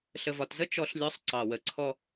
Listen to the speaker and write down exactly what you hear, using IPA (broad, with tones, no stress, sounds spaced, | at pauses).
ɬ ə˨ v ɒ˨ t z ə˦ t͡ʃ ɔ˦ ɬ lʲ ɔ˦ sˤ ǀ ɑ˨ w ə˨ ǀʰ ɔ˦